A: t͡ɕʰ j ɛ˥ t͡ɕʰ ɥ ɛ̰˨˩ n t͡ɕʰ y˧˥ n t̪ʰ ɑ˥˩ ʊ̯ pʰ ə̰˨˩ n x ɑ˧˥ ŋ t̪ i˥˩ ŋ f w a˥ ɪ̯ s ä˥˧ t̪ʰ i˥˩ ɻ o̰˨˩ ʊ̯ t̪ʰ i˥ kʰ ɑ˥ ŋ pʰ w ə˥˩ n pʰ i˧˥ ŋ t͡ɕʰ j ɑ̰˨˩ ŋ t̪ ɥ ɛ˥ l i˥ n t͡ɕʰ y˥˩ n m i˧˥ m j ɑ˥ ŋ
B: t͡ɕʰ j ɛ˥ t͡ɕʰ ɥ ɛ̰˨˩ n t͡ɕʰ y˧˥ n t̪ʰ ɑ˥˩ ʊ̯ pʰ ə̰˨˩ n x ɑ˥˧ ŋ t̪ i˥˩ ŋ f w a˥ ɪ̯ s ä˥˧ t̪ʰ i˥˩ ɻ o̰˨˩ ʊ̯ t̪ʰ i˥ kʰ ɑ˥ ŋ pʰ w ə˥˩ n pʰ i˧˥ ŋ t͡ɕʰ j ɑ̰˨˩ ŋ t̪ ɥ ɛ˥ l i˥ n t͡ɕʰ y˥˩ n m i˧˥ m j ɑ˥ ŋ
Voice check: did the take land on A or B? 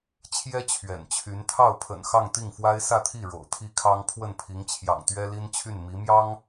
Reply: B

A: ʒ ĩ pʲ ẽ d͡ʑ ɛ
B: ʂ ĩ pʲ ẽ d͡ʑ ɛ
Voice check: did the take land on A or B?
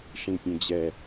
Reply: B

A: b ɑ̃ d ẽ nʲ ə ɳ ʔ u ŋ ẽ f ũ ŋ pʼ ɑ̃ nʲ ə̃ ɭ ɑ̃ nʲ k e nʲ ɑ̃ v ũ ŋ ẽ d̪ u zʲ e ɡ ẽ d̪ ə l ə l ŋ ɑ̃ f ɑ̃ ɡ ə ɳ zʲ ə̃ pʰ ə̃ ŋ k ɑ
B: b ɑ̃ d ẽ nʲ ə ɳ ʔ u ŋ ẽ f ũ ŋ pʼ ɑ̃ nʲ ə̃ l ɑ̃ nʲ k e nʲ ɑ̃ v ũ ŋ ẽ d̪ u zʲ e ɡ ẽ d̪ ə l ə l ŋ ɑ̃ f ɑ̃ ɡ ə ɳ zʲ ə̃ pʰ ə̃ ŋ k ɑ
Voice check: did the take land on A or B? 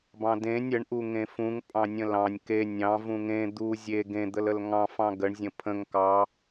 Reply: B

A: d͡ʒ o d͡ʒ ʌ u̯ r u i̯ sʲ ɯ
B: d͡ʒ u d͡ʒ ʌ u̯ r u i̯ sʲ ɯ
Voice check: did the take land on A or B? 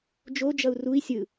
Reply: A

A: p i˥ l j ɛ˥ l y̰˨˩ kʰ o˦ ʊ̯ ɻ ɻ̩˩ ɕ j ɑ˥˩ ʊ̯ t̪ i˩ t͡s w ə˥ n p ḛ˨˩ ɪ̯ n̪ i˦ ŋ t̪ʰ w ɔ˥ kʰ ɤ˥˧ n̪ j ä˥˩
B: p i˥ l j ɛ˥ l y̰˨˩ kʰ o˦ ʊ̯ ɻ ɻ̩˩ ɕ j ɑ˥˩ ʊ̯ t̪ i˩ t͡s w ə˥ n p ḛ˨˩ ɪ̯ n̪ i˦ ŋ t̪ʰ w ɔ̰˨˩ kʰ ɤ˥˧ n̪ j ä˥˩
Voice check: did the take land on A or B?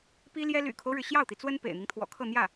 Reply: B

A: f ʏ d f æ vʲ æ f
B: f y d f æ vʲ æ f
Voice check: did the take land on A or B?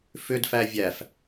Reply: A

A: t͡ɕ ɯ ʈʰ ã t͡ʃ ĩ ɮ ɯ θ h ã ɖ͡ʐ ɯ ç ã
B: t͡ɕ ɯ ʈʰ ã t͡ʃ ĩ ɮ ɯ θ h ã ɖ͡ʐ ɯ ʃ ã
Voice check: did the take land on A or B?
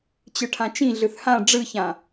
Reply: A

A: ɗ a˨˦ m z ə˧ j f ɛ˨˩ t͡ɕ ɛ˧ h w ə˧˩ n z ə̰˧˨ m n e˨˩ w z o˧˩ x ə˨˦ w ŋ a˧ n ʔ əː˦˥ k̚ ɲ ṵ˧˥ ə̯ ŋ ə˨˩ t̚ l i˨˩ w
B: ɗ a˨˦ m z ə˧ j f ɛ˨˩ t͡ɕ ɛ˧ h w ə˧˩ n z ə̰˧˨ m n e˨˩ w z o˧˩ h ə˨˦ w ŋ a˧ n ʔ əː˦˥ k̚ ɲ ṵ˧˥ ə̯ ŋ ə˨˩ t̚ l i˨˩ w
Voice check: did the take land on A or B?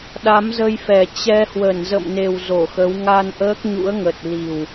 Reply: A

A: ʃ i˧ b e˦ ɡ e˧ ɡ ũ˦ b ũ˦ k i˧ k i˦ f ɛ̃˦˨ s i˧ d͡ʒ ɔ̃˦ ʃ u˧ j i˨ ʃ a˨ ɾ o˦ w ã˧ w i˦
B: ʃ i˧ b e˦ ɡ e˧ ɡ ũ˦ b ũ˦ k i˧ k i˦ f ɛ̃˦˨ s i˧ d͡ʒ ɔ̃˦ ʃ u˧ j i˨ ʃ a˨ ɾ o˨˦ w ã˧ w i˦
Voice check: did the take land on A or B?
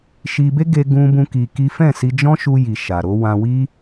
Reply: B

